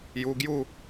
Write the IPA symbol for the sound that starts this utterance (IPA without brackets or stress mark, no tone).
j